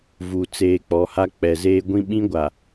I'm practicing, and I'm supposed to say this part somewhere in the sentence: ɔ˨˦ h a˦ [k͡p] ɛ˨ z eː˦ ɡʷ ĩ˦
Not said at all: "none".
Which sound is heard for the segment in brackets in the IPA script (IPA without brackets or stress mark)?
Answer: k͡p